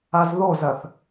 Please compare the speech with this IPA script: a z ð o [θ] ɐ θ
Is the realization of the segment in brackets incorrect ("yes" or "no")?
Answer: yes